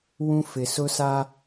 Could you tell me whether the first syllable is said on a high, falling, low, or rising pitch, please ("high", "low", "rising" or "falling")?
high